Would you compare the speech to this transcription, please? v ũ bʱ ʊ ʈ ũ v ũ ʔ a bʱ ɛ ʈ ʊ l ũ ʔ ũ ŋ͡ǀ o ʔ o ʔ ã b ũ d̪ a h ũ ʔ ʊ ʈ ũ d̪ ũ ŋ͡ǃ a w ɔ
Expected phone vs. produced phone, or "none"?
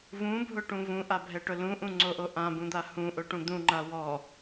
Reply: none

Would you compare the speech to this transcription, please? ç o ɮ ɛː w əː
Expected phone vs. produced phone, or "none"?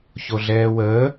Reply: none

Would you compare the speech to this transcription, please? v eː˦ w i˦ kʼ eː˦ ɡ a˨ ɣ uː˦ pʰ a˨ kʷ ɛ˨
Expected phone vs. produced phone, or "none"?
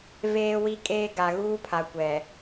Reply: none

